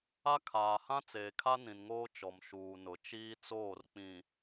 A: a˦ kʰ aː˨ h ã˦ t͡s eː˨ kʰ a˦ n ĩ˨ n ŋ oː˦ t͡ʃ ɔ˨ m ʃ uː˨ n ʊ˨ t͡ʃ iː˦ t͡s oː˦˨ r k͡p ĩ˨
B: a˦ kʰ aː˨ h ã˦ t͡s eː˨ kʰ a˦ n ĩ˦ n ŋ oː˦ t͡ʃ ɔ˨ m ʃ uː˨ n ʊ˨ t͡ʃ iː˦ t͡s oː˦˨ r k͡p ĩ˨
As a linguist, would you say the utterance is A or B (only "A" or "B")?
A